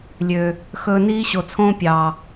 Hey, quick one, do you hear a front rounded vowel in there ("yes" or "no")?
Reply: yes